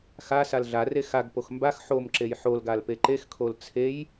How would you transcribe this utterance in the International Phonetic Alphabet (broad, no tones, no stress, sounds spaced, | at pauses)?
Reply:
x a s a l ɮ a r e x a ɡ p o x m b a x ħ o m ǁ e j ħ o l ɡ a l p e ǃ e x kʰ o l t͡sʰ e j